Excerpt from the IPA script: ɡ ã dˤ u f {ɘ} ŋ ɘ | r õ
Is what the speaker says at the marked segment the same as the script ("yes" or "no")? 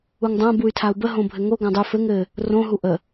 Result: yes